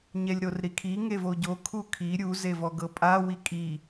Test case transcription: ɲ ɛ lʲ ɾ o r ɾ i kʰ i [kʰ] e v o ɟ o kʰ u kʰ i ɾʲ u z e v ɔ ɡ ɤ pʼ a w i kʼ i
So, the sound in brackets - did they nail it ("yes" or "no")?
no